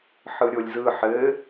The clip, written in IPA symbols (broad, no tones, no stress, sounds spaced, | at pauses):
ħ ɯ ɾʲ o lʲ z ɯ ħ ɘ